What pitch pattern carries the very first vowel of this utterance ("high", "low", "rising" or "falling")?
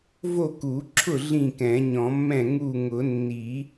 falling